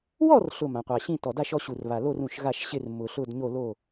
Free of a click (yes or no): yes